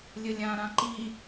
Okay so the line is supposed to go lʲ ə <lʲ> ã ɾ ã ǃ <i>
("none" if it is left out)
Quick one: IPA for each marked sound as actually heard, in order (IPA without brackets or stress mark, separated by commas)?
lʲ, i